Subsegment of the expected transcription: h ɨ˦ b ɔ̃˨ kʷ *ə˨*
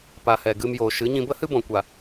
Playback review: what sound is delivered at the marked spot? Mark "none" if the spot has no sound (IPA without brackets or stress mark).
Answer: a˨